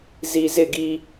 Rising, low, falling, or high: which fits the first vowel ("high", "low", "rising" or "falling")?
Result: low